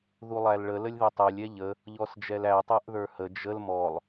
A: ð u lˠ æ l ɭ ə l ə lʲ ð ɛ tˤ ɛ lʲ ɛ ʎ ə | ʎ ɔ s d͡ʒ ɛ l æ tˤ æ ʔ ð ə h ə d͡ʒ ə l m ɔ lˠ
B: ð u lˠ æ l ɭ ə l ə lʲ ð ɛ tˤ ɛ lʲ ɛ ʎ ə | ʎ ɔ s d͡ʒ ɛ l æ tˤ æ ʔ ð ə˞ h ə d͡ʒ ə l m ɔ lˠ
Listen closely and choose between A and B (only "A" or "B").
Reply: B